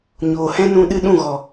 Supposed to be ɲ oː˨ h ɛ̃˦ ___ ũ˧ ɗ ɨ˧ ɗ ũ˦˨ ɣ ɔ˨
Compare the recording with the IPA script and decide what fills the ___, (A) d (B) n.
B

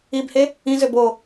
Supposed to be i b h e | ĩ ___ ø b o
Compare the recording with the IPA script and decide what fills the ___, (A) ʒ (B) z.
B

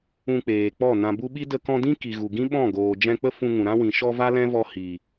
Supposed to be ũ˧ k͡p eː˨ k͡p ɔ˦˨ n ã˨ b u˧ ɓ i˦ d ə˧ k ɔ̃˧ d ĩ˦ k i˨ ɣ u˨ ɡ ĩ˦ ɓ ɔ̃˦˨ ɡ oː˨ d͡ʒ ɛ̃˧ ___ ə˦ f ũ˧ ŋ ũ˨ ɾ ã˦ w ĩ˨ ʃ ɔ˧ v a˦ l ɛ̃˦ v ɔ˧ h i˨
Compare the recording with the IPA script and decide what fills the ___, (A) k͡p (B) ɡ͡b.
A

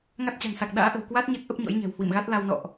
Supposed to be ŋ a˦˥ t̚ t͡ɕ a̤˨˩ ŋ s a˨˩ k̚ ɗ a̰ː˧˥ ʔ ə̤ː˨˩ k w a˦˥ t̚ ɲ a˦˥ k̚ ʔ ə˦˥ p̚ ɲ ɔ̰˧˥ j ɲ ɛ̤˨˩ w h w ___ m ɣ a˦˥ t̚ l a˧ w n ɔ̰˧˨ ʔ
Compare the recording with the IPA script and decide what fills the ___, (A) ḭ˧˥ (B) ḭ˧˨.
B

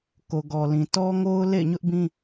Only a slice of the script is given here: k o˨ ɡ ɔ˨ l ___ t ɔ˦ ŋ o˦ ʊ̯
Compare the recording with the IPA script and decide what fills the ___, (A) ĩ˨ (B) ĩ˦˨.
A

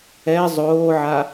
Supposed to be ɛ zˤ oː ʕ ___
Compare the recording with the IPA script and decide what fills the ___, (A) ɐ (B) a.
B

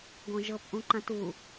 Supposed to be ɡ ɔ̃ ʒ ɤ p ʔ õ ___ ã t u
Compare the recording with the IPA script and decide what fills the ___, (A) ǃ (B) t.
A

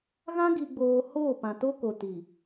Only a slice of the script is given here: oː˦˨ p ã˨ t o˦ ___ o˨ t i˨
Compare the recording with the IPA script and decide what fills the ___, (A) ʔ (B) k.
B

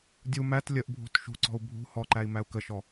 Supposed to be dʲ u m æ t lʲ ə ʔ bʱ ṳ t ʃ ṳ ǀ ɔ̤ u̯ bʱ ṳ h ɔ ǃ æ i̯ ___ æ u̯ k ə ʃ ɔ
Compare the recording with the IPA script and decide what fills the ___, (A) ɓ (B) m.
B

